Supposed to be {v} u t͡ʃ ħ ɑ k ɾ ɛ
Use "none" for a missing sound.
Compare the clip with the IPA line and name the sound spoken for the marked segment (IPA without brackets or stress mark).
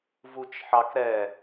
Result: v